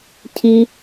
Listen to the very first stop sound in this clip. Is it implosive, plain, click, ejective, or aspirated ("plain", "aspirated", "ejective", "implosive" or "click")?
aspirated